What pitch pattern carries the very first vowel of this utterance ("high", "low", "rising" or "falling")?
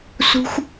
high